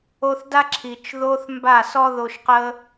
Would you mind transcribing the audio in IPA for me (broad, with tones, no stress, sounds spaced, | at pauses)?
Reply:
o˧ θ d a˦ ǁʰ i˨ t͡ʃ ð o˦ θ m b a˦˨ s ɔ˦ ð o˧ ʃ q ə˦